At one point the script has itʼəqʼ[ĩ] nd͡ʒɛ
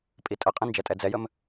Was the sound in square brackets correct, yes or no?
yes